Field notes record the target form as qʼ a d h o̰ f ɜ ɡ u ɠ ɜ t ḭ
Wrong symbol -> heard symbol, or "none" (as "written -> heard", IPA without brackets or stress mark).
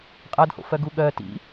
none